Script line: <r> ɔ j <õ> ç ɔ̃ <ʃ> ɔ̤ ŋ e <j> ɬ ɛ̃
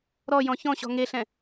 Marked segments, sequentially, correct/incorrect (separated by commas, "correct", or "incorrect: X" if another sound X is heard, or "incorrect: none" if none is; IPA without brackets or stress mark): incorrect: ɾ, incorrect: ɔ̃, incorrect: ɕ, incorrect: none